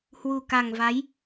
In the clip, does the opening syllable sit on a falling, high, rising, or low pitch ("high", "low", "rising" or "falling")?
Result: low